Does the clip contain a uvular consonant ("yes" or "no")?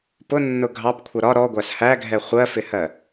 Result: yes